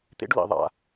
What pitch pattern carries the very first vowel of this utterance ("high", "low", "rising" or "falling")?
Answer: high